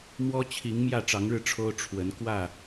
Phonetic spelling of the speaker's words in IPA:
m w ɔ˦ t͡ɕʰ i˨˦ ŋ m j ä˥˨ ʈ͡ʂ ɑ˨˦ ŋ ɻ ɻ̩˧ ʈ͡ʂʰ o˦ ʊ̯ ʈ͡ʂʰ w ə˨˦ n k w ä˥˨

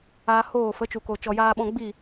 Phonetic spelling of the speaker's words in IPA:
aː˧ h oː˦˨ f ə˨˦ t͡ʃ u˨ k o˨ t͡ʃ ɔ˨ j aː˧ ɓ ɔ̃˧ ɡ͡b i˦˨

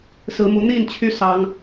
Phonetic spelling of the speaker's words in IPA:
s ɹ̩˨˦ m u˨˦ n̪ i˥˨ n t͡ɕʰ y˦ s ɑ˦ ŋ

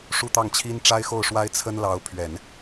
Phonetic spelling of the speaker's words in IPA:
ʂ u˥˧ t̪ ɑ˥˩ ŋ t͡ɕʰ i˥ n ʈ͡ʂ a˥ ɪ̯ x o˥˩ ʊ̯ ʂ w a˥ ɪ̯ t͡sʰ ə˥ n l ɑ˧˥ ʊ̯ pʰ ɥ ɛ˨˩˦ n

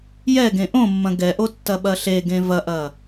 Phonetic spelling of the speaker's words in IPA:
j ɛ ɡ ẽ ʔ õ mː ɐ̃ ɡ ɛ ʔ o tː ɐ ɓ ɐ ɬ e ɡ ẽ v ɐ ʔ ɐ

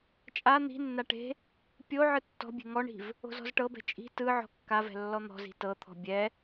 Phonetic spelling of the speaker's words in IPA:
t͡ʃʼ a n̪ i̤ nː a ʈ e̤ | pʲ o ʕ ɯ tː ɔ̤ bʲ e̤ ŋ ɔ ɳ i̤ v | o̤ z ɔ̤ z ʈ ɤ b ɛ̤ t͡ʃʼ i̤ t ɯ ʕ ɔ̤ kː a v ɛ̤ lː ɔ n̪ ɔ̤ z i̤ t ɤ t̪ʰ ɔ̤ bʲ ɛ

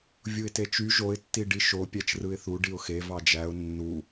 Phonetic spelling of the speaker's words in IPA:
vʲ u ɪ̯ t e t͡ʃ y ʒ o ɪ̯ tː i ɖ i ʃ o pʲ æ t͡ʃ r ɯ ɪ̯ θ u ɖ i ʊ̯ x e v ɑ d͡ʒ æ ʊ̯ nː u

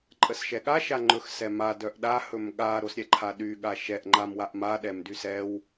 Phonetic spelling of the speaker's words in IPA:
ǃʼ ə s ʃ ɛ ɠ a ʃ a ŋ͡ǃ ɵ x s ɛ m a d œ ʔ ɗ a h ɵ m ɠ a ɾ o s ɾʲ ɛ ǃʰ a ɗ y ɠ a ʃ ɛ ʔ ŋ͡ǃ a m w a ʔ m a ɗ ɛ m d y s ɛ w

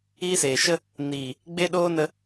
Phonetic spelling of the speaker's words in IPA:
iː˦ s eː˨ ʃ ə˦ | n iː˨ | ɡ͡b e˦ ɗ oː˦ n ə˧

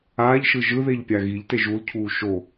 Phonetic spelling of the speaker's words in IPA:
aː ʎ ʃ ɯ ʒ ɯ ð e ʎ pʲ a ɣ i ʎ t e ʒ u l cʰ uː ʃ o

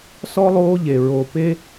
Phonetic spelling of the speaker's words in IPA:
s ɔ˥ lˠ oː˦ ʎ e˨ ɹ o˨ p e˦

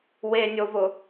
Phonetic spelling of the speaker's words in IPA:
w e nʲ o v ʊ

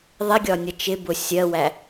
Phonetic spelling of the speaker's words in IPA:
ðˤ ɪ ɡʲ ɒ nʲ ʌ t͡ʃ ɪ b ʊ sʲ ɜ w æ

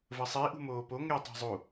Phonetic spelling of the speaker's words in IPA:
v ə sˤ i ʔ ṳ m oː p o ŋ ɛ tˤ ɛ̤ zˤ u

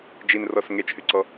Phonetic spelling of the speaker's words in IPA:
d͡ʒ i n r ɔ s ŋ e t͡ʃ h y ǀ ɔ

